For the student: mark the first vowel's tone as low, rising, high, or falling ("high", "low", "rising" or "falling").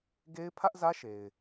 high